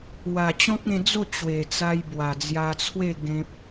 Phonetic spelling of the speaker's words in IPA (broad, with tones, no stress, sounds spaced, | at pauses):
w a˨˩ t͡ɕ ɔ̃˦ k̚ ẽ˧ d͡z o˥˧ t͡ɕ w e˨˩ t͡s a˧ j b w a˨˩ d͡z j a˧ t͡sʰ w e˥˧ ɡ ẽ˦ p̚